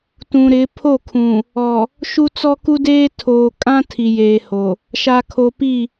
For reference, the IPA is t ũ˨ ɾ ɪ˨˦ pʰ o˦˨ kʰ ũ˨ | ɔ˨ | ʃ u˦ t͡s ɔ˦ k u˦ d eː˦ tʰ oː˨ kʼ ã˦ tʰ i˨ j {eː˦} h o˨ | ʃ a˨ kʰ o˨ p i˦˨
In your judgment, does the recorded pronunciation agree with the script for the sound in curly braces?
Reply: no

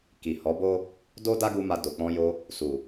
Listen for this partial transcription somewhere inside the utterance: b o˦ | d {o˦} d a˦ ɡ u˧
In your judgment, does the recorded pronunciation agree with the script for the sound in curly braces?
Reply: yes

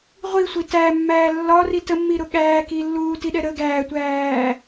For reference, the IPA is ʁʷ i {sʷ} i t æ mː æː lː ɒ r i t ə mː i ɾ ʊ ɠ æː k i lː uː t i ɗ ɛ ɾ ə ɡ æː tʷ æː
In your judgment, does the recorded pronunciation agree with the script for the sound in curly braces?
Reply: yes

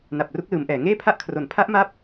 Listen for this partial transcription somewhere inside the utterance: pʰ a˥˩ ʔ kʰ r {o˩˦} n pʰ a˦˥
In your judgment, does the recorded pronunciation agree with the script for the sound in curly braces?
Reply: yes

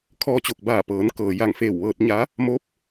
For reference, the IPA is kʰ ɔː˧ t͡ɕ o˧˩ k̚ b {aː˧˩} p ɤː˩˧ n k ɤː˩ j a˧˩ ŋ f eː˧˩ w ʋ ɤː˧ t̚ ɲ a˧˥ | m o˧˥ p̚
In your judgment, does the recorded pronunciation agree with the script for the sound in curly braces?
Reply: yes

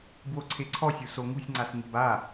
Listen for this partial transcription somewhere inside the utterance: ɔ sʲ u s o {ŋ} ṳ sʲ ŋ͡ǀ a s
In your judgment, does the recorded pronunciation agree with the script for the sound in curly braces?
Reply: yes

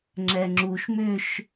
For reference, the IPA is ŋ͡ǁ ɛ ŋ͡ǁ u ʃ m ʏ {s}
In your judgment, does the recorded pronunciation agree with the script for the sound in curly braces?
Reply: no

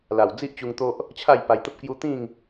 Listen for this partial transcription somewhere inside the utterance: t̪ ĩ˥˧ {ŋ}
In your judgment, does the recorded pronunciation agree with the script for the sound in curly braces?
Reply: yes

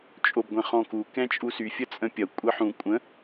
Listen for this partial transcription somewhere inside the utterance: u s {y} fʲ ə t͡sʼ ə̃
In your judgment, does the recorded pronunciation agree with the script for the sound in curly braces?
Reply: yes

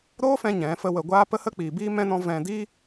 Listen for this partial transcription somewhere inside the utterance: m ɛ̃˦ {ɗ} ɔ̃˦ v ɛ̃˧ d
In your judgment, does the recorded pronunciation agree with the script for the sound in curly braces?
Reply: no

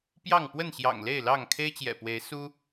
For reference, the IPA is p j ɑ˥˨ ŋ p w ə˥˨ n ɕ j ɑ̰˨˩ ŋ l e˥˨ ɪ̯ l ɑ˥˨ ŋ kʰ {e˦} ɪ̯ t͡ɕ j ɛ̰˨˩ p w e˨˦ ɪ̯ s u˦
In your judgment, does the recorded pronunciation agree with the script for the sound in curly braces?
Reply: yes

